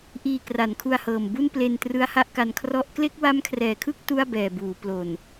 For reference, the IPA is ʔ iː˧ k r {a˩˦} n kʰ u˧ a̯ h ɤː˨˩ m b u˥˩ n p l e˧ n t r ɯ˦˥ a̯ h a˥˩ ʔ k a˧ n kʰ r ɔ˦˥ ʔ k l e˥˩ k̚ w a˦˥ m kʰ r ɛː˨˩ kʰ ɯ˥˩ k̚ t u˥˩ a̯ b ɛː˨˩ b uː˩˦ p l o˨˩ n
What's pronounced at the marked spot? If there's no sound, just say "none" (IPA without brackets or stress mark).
a˩˦